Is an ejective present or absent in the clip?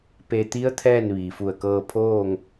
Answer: absent